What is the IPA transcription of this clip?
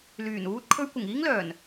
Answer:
l yː˨˩ n uː˧ t̚ kʰ ɵ˧ ɥ kʷ ɪ˨˩ ŋ iː˥ ŋ l œː˨˩ n

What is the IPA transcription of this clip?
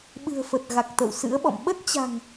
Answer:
ɓ ɨ̤˨˩ ə̯ f ə˨˩ t̚ ɣ a˨˩ k̚ t̪ ə̰˧˨ w s ɨ̰˧˥ ə̯ ɓ ɔ̰˧˨ m ɓ ə˦˥ t̚ t͡ɕ a̤˨˩ ŋ

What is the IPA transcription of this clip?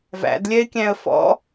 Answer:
v æ̰ d lʲ ɛ ɪ̯ kʲ æ̃ ə̯ f ɔ̰

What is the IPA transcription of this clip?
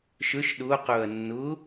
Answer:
ʃ ø ʃ ɗ ʊː q ɵː ɐ̯ nː ʊː

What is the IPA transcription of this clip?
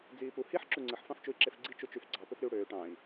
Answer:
d͡z iː p u h i ħ ǁ u ŋ͡ǀ ɯ ħ f ɑ̃ f t͡ʃ u i̯ ǁ e f ɡ͡ǀ i t͡ʃ u t͡ʃ y f ɡ͡ǀ ɑ p ø f ɾ y u̯ ɽ øː ʈ ɑ̃ i̯

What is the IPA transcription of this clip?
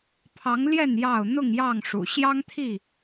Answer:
pʰ ɑ˨˦ ŋ l j ɛ˥˨ n j ɑ˥˨ ʊ̯ n̪ ʊ˥˨ ŋ j ɑ˥˨ ŋ ʂ ṵ˨˩ ɕ j ɑ˦ ŋ t̪ʰ i˥˨

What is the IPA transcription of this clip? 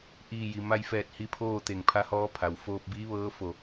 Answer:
ʔ iː˧˩ j i˩ m a˧ j f ɛː˧˩ t̚ h i˧˥ pʰ oː˥˨ t̪ e˧˩ ŋ pʰ a˧˥ h ɔː˧˥ pʰ a˩ w f oː˧ p̚ b iː˧˥ ʋ ɤː˧˥ f o˧˩

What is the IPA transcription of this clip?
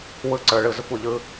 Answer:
w ɯ˧ ǀ ə˞˨ ɭ ɯ˨ z ə˧ kʷ ə˨ ʎ ɯ˧

